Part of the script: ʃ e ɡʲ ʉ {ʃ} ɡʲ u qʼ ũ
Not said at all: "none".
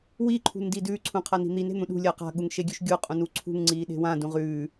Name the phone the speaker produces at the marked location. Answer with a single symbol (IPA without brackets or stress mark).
ʃ